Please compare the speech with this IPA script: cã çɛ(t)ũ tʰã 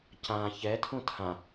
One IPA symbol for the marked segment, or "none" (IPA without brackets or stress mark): tʰ